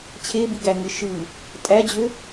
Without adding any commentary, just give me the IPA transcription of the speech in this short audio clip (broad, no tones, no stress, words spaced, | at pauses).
t͡ɕʰebiɡæŋɯ ʃɯ | tʼæd͡ʑø